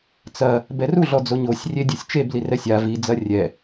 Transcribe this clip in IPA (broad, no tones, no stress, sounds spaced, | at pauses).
t͡s ɐ | b ɛ r u ɮ ɔ d͡z o ɲ o sʲ rʲ e dʲ u sʲ t͡ʃ e b l i r ɛ sʲ a v i d͡z ɐ rʲ ɛ